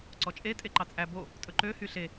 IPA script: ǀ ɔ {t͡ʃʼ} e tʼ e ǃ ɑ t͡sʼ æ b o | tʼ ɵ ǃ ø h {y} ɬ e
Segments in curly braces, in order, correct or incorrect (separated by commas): correct, correct